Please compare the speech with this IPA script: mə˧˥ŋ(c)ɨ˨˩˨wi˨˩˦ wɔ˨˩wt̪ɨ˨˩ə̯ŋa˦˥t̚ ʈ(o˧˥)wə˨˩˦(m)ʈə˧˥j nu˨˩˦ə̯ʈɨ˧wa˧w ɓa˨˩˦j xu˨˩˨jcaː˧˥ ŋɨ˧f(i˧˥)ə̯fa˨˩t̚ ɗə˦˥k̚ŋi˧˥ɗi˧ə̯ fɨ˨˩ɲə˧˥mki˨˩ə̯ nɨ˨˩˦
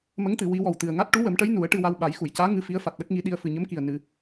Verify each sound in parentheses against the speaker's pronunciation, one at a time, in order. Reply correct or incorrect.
incorrect: t̪, incorrect: u˧˥, correct, correct

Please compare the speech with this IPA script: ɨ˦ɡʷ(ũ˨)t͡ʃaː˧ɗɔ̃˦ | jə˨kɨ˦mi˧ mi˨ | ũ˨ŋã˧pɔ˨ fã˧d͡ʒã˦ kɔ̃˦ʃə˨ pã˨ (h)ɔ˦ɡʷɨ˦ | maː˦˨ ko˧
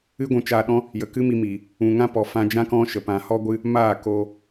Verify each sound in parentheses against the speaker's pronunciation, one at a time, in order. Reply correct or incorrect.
incorrect: ũ˧, correct

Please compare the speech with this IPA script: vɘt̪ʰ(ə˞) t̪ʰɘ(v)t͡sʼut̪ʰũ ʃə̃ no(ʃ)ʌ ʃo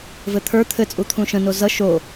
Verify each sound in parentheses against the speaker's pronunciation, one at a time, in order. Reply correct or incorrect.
correct, incorrect: none, incorrect: z

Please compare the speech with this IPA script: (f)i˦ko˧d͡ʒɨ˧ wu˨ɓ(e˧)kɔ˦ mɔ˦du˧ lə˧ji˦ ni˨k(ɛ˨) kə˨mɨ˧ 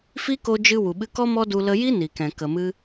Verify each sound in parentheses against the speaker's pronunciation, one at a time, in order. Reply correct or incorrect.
correct, incorrect: ɨ˧, incorrect: ɛ̃˨

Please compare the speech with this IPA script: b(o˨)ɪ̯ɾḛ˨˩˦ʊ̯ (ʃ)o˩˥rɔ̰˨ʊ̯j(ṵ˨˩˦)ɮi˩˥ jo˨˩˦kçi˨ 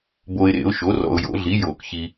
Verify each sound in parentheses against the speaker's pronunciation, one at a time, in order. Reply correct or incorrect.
correct, correct, incorrect: o̰˨˩˦

